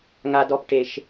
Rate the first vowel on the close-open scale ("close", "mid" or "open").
open